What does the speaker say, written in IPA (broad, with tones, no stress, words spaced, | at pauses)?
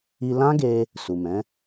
i˧lã˦ɡe˧ | su˨mɛ̃˨˦